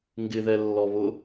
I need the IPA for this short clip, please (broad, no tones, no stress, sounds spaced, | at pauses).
ŋ ɡ ɪ ð ɛ lː ɔ β ʊ